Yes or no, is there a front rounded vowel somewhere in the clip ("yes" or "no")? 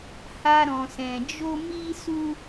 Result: no